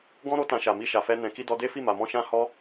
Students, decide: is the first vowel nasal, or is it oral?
nasal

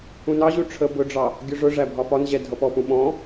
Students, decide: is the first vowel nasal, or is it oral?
nasal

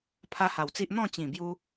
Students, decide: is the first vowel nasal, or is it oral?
oral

